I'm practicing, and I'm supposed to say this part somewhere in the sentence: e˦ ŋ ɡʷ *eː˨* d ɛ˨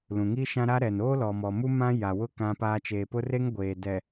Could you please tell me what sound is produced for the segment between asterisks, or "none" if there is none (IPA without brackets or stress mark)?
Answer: eː˨